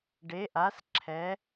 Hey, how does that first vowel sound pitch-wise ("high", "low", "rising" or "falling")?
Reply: rising